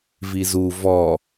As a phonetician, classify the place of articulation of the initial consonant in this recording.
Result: labial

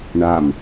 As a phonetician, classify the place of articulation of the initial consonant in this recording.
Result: retroflex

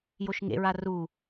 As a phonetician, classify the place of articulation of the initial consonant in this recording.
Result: palatal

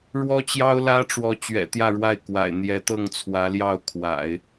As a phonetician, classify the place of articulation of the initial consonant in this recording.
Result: retroflex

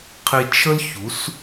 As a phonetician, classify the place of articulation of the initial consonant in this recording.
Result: uvular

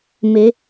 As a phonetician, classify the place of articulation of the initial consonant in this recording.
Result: labial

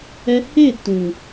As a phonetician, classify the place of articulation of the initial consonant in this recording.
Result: glottal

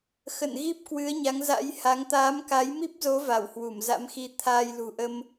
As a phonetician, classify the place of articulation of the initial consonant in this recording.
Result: velar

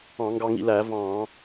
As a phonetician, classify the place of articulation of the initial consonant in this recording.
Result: velar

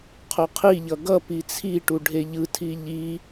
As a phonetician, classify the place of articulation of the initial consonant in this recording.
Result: uvular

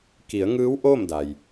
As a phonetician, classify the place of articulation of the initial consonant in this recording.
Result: velar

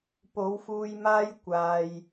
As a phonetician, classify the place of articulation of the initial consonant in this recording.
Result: labial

